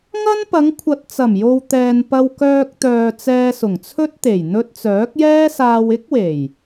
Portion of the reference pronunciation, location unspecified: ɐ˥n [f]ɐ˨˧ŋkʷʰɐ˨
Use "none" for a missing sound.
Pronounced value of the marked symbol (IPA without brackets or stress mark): p